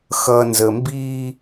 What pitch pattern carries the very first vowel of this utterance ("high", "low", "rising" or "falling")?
low